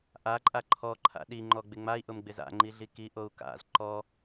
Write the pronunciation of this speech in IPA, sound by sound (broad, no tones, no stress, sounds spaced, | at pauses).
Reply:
ʔ a ǃʼ a ǃʰ ɔ ǃʰ a̰ ɗ i ŋ͡ǃ ɔ ɡ͡b ɪ ŋ͡m a i̯ ʔ ʊ m ɡ͡b ɪ z a̰ ŋ͡ǃ i ɮ i k i ʔ o u̯ k a̰ z ǃ ɔ